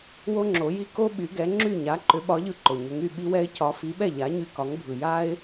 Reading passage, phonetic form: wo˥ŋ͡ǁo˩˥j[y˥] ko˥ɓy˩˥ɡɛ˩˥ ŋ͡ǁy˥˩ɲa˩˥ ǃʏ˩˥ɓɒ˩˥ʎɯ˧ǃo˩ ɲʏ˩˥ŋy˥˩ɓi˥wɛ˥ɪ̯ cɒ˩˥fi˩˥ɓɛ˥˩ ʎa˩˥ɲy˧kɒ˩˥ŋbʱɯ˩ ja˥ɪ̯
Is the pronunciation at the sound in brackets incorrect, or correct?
incorrect